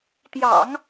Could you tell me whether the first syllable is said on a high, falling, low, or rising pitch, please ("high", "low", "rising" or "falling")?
low